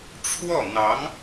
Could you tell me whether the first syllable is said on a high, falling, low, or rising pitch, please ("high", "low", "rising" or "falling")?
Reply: falling